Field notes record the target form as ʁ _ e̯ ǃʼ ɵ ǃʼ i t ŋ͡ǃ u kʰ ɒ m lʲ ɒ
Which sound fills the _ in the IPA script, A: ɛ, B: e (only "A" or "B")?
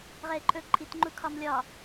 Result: A